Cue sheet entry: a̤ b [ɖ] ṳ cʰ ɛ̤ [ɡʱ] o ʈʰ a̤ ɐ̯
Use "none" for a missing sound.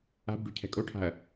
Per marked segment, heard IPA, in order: ɖ, kʼ

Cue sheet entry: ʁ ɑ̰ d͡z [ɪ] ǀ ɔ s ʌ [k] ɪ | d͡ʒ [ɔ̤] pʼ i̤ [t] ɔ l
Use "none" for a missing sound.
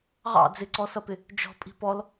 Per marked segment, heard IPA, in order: ɪ, p, ɔ̤, p

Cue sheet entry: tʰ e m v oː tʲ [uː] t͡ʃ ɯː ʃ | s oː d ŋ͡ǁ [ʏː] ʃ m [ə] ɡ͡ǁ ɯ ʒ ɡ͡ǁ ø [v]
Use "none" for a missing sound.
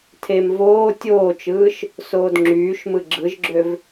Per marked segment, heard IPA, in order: oː, yː, ɯ, v

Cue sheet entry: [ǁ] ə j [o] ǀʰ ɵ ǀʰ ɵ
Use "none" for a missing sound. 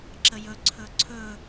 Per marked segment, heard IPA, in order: ǁ, ɵ

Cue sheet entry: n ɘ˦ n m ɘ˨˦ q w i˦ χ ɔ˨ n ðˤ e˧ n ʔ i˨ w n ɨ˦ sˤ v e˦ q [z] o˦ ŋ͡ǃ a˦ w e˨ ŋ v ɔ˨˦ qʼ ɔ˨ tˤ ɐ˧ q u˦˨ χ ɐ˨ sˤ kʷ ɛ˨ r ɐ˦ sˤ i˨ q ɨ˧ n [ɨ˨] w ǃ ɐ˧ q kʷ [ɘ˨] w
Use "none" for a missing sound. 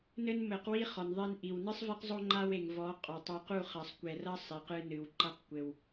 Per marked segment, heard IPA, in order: zˤ, ɨ˨, ɘ˨

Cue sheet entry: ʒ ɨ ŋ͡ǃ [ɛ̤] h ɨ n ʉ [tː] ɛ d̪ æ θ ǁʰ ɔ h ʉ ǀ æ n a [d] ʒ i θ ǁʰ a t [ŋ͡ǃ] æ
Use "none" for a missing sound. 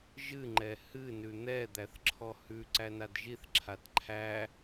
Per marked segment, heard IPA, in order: ɛ, n̪, d, ǃʰ

